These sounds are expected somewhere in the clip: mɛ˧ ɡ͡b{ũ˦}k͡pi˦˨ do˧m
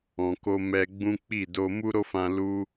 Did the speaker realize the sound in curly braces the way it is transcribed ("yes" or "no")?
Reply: yes